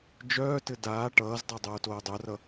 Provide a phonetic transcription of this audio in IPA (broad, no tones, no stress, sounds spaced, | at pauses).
d͡ʒ œː t ɘ d aː ʈ ʌː z dˤ ʌ dˤ oː t oː dˤ œ r ʌ